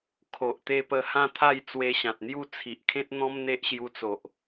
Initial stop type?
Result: aspirated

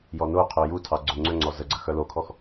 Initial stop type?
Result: aspirated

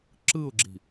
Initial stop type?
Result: click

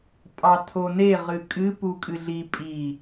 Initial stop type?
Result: ejective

